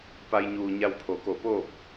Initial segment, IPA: p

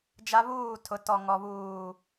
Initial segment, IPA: d͡ʒ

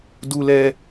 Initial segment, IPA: d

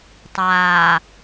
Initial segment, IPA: tˤ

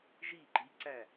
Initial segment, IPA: ʒ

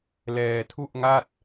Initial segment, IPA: l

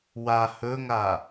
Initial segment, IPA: w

